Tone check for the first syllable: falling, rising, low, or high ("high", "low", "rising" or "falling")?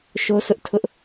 high